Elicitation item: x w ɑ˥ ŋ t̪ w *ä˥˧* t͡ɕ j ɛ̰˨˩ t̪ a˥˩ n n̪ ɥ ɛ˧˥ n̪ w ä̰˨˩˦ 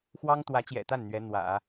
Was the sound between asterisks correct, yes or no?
no